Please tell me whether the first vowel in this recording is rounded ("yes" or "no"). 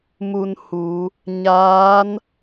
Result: yes